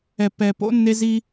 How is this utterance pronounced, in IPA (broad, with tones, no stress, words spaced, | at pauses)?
ɛ˨pɛ˨po̰˦ nːe˦zi˦